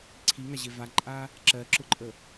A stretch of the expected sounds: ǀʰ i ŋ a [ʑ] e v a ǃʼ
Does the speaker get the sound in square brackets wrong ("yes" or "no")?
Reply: no